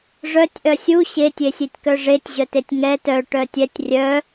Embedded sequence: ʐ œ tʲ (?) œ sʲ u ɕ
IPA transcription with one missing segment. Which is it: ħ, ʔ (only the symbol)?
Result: ʔ